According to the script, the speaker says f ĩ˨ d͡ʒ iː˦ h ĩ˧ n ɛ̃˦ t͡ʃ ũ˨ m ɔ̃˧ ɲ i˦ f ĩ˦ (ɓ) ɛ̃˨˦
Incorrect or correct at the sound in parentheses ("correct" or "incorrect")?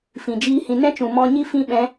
correct